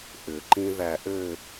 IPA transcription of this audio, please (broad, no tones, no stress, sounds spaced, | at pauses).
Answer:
ʔ ʏ ǃ ĩ ð æ ʔ ɘ